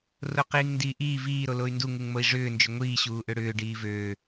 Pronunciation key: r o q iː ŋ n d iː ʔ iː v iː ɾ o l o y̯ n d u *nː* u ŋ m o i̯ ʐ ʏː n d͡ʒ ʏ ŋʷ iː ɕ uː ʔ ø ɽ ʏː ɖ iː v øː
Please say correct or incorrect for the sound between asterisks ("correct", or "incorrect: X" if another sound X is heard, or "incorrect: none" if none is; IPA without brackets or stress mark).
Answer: incorrect: ŋ